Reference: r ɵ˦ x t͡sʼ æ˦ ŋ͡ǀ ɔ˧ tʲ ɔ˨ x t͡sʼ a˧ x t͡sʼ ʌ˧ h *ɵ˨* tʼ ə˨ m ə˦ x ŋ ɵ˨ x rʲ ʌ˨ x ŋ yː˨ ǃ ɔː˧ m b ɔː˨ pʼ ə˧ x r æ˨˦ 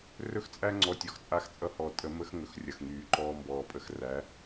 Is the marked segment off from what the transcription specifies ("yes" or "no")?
yes